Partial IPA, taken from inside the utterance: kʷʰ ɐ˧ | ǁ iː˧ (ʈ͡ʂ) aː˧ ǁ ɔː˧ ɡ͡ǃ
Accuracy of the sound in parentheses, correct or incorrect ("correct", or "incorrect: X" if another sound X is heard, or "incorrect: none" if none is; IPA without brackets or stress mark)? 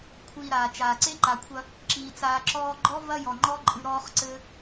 incorrect: t͡s